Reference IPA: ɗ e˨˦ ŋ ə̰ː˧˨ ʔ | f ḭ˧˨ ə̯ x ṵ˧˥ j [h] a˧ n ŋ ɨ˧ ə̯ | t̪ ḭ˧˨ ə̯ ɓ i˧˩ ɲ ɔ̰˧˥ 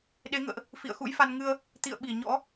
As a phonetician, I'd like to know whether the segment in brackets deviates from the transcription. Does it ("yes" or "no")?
yes